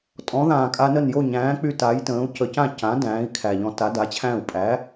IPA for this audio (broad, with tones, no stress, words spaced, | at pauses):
tʼɔ̃˩˥ðãː˨˩kʼa˧nə˥˩n jo˥˩ɲæ̃ː˩˥k͡py˧ ta˩˥jtə̃ː˩˥u̯ cə˨˩cã˥˩ cã˩˥ dæ̃ː˩˥i̯kʰæ˨˩ʎɔ̃˧ ta˩˥ da˩˥t͡ɕʰæ̃˥˩u̯ pʼæ˩˥